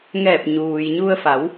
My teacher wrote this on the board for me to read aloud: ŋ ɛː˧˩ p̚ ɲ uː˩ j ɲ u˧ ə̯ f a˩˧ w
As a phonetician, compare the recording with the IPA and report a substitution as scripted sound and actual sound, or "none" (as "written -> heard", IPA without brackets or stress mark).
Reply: none